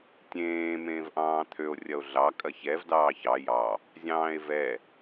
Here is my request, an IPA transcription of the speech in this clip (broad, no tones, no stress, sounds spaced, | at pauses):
tʲ ẽː m ẽː v ʔ ɑ̃ː t̪ʰ ø o̯ rʲ ɐ o̯ ɮ ɑ kʼ ɐ ç ɛ v d ɑː ç ɑ j ɑ | zʲ ɑ̃ː e̯ v ɛ